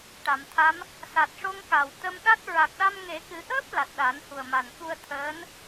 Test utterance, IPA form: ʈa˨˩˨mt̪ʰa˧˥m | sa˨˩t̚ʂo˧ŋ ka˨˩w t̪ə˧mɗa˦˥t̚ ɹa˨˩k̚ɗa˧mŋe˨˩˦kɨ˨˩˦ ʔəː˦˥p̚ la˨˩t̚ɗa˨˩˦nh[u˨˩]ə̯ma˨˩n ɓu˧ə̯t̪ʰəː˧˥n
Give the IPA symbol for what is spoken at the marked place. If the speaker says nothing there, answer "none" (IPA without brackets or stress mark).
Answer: u˨˩